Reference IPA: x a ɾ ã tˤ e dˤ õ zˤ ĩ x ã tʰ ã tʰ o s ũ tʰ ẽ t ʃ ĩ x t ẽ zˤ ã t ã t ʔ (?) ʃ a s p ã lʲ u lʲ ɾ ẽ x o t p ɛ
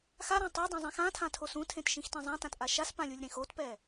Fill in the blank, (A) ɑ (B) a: B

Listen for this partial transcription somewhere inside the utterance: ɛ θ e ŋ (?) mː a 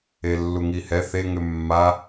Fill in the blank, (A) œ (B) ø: B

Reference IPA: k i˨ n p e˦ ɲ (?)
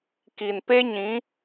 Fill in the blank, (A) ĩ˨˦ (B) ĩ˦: A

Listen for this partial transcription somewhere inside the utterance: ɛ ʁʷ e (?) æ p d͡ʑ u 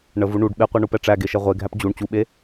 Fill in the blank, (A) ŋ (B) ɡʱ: B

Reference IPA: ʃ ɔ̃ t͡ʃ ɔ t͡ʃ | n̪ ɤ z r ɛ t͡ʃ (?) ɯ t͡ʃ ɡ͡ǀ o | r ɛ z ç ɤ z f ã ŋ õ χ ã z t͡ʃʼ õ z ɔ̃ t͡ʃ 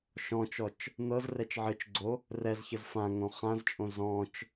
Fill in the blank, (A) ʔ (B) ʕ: B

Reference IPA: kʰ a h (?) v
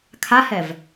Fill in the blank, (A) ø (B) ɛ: B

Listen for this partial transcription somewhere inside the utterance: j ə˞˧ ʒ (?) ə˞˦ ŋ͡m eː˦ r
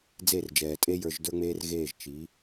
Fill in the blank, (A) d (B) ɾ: A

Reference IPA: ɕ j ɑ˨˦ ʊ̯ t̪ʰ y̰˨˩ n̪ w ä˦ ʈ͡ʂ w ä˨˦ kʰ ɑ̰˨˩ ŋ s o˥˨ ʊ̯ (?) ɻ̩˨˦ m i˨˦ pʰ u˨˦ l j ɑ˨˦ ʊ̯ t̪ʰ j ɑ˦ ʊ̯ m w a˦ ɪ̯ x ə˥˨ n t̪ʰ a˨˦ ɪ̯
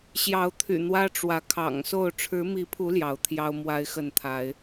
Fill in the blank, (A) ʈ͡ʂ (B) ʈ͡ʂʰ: B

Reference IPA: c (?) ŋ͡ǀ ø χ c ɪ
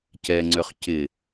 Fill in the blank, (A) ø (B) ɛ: B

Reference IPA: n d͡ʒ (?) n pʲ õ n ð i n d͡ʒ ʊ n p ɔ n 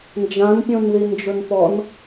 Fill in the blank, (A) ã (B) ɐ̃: A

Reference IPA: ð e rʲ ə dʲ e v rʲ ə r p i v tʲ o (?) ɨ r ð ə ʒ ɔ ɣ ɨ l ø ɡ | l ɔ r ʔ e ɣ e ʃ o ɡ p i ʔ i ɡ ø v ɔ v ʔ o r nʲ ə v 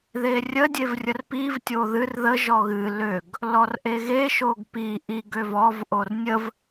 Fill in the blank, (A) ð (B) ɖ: A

